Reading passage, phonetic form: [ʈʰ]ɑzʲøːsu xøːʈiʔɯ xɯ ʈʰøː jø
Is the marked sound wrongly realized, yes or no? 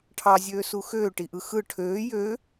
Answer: no